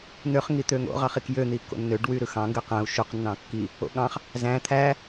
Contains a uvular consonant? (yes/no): yes